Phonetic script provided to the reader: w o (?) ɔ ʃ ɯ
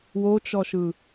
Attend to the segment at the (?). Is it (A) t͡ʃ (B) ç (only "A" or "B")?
A